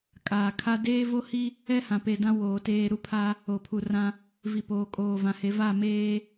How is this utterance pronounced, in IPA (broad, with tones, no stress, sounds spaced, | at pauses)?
kʼ aː˨ kʰ a˦ d eː˦ v o˦ h i˦ | ɛ˦ h ã˨ p e˨ d ã˦ w oː˨ t eː˦ ɾ u˦ pʰ a˦ | o˨ pʰ u˨ r ã˦ | v i˨ p oː˨ kʼ oː˨ v ã˨ h e˨˦ v a˦˨ m eː˦